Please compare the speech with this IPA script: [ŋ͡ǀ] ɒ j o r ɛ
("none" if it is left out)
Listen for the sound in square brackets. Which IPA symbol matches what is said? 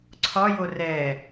ǀʰ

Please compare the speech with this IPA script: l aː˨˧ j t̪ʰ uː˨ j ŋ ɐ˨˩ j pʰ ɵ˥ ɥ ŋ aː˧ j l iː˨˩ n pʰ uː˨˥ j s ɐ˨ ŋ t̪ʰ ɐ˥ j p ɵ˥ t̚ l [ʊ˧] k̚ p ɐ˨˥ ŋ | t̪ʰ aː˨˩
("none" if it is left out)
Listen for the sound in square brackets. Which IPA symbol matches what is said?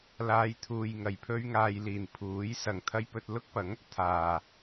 ʊ˥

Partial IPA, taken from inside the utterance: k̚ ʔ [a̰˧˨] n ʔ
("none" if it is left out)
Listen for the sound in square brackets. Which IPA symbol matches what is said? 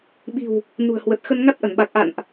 a̰˧˨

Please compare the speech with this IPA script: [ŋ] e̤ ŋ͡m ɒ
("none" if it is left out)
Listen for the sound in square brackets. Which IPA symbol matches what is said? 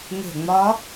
ŋ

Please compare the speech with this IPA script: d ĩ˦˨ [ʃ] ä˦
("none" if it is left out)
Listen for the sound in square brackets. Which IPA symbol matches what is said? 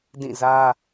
z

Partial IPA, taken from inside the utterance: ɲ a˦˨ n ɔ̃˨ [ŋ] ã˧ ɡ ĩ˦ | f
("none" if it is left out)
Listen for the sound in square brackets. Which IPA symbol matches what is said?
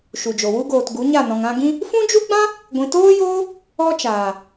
ŋ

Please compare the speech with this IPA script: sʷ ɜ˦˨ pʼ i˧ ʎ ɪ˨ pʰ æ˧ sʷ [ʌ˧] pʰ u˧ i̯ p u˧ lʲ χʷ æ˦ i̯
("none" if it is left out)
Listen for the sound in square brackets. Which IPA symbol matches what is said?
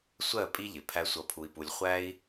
ʌ˧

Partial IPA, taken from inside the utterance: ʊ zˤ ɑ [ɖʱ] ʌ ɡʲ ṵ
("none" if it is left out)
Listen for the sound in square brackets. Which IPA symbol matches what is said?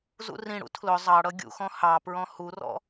ɽ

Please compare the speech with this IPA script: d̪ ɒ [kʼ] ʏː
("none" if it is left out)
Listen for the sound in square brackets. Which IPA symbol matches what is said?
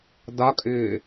kʼ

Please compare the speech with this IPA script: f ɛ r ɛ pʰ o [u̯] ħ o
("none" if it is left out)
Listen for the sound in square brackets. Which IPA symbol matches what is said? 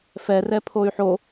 y̯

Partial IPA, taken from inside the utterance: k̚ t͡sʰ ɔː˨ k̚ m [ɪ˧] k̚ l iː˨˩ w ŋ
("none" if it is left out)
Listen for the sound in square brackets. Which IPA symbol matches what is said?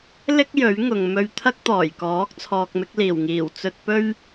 ɪ˧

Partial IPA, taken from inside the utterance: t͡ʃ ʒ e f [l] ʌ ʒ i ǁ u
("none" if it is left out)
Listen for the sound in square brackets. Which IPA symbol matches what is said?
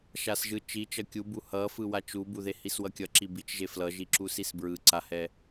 l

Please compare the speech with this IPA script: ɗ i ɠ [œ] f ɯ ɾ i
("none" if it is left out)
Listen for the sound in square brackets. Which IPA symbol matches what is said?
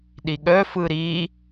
œ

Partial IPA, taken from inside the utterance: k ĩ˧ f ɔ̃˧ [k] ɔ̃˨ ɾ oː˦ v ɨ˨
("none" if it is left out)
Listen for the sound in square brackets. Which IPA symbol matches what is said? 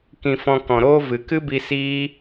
k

